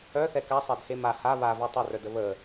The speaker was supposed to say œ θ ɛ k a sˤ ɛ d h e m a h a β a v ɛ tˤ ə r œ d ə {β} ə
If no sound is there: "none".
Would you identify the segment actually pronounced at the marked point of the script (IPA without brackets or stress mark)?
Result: β